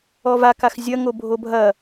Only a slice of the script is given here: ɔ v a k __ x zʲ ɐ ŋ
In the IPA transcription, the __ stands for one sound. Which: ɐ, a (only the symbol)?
a